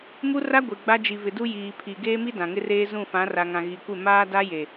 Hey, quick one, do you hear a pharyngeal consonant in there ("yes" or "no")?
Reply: no